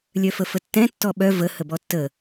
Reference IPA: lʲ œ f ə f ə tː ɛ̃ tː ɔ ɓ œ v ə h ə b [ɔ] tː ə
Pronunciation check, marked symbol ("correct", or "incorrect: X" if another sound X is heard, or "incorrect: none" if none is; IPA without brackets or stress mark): correct